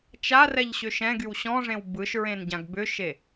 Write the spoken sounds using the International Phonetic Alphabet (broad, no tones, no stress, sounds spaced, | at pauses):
t͡ʃ a r ɛ ʎ ɕ ʏ ʃ ɛ̃ ɡ y w ɕ ɔ̃ ʐ ẽ w b ɯ ʃ ɹ ẽ n ɟ ã ɡ b ʏ ʃ e